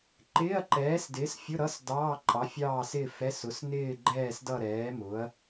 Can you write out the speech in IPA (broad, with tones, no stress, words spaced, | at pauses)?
ǃɪː˧˥˧ɐ̯ǃɛː˨˥sdɪː˨˥sfʲʊ˧˥˧ ɾʌ˧˥˧s dɑː˧˥˧ǃʼɑ˨˥fʲɑː˥˧sɪː˥˧ fɛ˧˥˧s ʊ˨˥snɪː˥˧ɡ͡ǃɛː˥˧s dʌ˥˧ɾɛː˨˥mʊ˨˥ɐ̯